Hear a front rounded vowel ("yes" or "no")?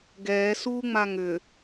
yes